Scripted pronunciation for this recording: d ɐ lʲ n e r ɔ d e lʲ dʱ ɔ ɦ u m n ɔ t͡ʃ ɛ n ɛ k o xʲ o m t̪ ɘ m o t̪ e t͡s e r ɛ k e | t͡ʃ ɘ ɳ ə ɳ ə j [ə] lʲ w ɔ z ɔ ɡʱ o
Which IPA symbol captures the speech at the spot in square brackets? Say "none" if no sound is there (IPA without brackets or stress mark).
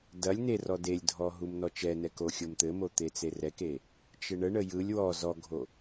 ɯ